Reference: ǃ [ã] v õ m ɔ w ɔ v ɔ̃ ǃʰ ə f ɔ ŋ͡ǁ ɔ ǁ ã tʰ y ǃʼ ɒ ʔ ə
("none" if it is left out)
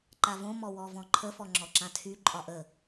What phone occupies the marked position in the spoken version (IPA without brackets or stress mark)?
a